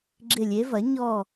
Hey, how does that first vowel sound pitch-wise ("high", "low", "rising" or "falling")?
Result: falling